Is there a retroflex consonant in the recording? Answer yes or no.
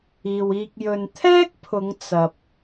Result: no